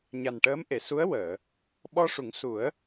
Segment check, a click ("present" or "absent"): absent